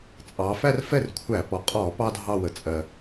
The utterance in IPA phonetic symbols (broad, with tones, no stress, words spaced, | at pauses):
t͡sʼɑ˩˧fæ˥˧r fɛ˥˩rkʷʰæ˧˩˧pɔ˩˧ qʼɔ˧˩˧ pɑ˥dʱɑ˥˧ wə˩˧t͡sʼɜ˨˩